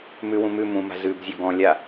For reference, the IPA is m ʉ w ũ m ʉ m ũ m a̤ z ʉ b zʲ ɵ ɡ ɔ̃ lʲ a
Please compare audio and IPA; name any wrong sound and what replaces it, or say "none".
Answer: none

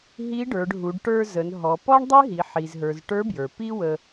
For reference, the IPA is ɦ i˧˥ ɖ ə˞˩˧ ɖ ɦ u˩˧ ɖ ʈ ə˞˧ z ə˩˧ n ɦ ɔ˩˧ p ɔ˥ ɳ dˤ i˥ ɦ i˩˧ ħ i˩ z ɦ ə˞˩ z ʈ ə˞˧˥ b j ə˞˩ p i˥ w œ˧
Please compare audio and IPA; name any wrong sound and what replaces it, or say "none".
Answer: œ˧ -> ə˧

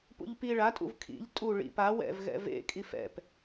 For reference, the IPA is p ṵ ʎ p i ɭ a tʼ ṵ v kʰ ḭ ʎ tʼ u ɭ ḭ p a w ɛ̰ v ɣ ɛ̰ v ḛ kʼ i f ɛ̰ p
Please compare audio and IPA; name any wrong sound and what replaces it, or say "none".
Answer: none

